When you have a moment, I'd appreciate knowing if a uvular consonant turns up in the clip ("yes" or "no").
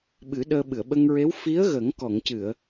no